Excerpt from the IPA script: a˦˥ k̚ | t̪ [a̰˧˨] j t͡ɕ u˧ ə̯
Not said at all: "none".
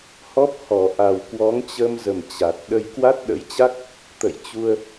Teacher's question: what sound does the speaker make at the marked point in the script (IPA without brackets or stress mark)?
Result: ə̰˧˨